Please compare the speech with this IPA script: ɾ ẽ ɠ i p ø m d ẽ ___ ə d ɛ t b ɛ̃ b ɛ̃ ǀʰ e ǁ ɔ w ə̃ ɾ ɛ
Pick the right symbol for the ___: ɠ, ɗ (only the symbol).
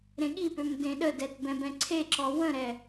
ɗ